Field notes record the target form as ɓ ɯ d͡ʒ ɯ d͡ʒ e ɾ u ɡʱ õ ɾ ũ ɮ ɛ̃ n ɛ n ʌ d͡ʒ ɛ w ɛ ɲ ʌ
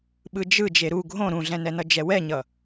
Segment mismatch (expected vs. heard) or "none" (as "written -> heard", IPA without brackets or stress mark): none